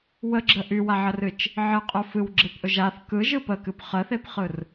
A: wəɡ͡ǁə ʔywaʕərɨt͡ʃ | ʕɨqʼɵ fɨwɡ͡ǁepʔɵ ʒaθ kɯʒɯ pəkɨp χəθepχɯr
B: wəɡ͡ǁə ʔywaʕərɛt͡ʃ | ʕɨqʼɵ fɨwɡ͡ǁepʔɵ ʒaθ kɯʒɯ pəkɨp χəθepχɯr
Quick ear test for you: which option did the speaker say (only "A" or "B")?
A